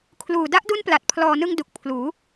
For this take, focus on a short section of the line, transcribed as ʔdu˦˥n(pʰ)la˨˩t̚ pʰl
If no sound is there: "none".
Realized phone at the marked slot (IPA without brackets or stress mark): p